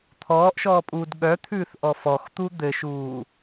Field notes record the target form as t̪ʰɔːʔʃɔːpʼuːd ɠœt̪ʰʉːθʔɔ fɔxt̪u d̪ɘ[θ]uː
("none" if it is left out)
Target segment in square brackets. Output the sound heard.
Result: ʃ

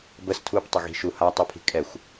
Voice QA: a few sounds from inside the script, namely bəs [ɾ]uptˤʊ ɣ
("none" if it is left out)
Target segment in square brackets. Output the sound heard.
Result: tʰ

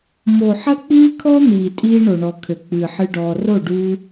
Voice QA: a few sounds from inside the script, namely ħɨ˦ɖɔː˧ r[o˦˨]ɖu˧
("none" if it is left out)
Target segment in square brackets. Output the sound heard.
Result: o˦˨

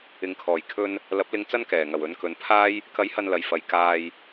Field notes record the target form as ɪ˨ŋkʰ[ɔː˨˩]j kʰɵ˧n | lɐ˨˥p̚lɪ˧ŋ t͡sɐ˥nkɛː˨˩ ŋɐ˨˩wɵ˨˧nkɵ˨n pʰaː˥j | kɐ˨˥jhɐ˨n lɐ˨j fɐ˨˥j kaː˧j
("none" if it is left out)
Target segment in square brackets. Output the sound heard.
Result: ɔː˨˩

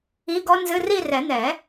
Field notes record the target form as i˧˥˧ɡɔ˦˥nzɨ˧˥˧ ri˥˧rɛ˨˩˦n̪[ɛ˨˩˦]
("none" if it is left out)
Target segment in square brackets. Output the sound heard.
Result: ɛ˨˩˦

